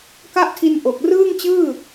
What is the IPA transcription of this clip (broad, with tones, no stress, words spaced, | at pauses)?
ka˥˩ʔtʰi˧n ʔo˨˩k̚rɯː˥˩ŋt͡ɕɯː˥˩